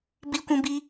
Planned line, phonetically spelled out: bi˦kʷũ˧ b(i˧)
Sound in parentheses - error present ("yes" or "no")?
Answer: no